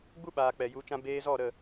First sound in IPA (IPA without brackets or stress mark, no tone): ɡ͡b